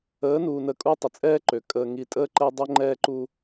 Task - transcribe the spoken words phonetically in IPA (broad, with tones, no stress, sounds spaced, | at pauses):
əː˨˦ n uː˨ n ə˨ kʼ u˧ tˤ ə˨ t͡sʼ ɛː˦ ǃ ø˨ kʼ əː˨ ŋ i˨ tʼ əː˧ ǃ ɛ˧ dˤ ø˧ ŋ͡ǃ ɛː˧ ǃ u˧